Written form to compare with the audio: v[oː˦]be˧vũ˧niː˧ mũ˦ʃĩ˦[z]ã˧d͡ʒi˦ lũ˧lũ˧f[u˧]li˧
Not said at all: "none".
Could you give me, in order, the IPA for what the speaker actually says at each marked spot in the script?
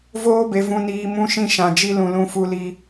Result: oː˦, ʃ, u˧

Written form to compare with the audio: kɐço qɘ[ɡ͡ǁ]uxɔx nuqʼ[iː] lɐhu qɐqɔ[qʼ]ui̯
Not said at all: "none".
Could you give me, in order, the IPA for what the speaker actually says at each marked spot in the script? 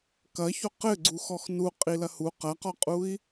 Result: ɡ͡ǀ, i, qʼ

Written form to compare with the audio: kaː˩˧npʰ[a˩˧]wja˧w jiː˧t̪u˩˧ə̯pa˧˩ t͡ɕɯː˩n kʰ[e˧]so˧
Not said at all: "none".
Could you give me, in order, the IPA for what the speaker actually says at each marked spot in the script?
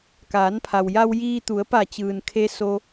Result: a˩, e˧

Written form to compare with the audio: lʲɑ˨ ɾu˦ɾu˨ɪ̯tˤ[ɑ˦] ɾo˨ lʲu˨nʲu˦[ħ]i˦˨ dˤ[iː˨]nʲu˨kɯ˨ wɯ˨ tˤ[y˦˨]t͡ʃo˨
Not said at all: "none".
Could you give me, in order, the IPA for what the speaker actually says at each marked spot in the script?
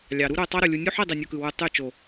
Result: ɑ˦, ħ, i˨, y˦˨

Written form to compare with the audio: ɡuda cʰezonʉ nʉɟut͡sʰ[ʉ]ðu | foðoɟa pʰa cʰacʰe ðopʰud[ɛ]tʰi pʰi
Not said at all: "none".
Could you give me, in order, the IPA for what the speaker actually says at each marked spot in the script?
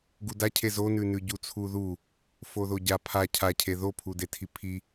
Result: u, e

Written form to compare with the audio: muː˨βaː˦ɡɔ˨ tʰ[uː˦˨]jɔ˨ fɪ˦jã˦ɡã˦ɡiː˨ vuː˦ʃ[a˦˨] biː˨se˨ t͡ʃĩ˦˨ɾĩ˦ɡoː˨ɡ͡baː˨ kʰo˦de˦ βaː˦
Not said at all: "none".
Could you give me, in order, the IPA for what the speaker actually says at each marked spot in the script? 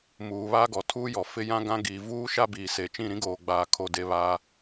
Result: uː˦, a˦

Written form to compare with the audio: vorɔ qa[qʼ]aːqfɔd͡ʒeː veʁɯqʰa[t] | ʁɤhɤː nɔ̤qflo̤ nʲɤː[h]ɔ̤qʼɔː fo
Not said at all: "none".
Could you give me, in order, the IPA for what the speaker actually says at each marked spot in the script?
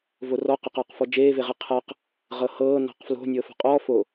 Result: q, q, f

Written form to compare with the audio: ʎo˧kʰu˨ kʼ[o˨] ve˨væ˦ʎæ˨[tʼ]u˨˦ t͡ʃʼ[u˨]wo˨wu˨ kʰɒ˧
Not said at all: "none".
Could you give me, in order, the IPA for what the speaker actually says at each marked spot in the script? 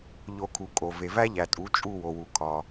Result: o˨, tʼ, u˦˨

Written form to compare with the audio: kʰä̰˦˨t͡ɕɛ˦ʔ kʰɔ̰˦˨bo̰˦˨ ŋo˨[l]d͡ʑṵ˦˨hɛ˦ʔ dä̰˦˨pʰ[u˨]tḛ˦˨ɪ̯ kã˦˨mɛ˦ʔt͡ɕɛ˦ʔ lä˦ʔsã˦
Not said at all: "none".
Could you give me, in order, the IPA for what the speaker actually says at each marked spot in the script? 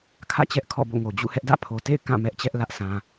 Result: none, o˨

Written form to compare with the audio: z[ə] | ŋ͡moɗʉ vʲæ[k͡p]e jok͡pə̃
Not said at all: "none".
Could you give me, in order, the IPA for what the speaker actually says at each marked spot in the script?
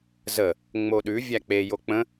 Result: ə, k͡p

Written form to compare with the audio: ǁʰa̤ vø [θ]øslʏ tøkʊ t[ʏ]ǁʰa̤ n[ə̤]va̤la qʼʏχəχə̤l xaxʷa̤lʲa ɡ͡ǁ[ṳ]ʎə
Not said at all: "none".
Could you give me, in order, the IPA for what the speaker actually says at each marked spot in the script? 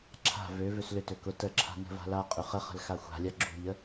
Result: v, ə, ə̤, ṳ

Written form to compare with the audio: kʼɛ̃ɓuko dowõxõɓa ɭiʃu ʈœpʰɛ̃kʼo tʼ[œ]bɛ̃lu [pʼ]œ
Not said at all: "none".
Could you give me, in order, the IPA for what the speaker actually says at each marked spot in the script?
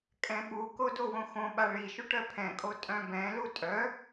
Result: œ̃, tʼ

